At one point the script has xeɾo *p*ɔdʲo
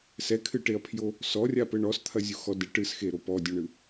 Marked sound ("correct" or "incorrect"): correct